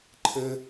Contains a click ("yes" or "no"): yes